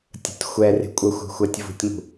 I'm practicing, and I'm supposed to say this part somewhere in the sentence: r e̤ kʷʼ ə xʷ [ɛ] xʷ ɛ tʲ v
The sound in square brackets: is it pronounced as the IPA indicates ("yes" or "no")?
no